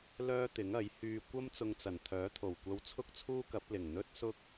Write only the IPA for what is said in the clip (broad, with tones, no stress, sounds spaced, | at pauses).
l œː˥ t̪ ɪ˨˥ ŋ ɐ˨˥ j h yː˧ kʷ ɐ˥ m t͡s ʊ˧ ŋ t͡s ɐ˨˩ n t̪ʰ œː˨˥ t̪ʰ o˨˩ w kʷ ɐ˧ w t͡sʰ ʊ˥ k̚ t͡sʰ uː˥ k ɐ˨˥ p̚ l ɪ˨˩ ŋ n̪ ɵ˥ t̚ s ʊ˥ k̚